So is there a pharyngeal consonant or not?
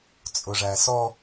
no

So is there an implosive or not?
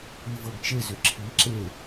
no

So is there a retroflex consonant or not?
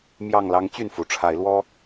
yes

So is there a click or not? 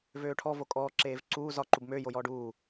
yes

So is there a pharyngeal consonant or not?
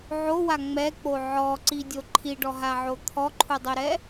yes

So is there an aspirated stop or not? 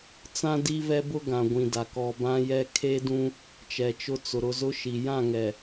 yes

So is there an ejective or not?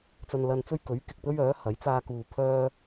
no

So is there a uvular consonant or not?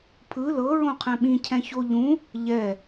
yes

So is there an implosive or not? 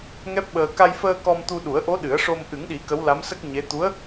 yes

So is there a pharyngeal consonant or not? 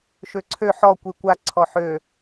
yes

